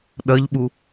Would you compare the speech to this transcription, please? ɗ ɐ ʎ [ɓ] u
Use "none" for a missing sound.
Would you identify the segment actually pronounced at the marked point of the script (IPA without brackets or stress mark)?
ɓ